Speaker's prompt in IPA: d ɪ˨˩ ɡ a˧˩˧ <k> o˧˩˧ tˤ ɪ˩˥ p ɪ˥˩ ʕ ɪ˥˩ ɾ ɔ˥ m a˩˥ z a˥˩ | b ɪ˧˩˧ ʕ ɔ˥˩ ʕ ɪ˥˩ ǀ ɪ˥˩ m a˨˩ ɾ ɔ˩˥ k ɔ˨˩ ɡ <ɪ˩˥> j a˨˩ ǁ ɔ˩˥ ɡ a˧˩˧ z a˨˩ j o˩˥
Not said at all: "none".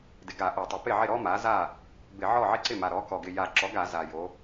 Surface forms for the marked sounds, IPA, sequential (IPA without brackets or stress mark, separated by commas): ʔ, ɪ˨˩